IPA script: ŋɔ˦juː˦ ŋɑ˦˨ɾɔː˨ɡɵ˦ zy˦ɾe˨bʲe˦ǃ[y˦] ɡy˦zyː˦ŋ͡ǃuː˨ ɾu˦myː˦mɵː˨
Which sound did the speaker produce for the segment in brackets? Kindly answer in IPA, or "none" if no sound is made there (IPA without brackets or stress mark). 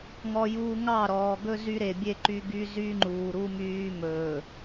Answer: y˦